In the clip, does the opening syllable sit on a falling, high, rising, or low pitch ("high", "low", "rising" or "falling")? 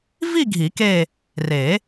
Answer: falling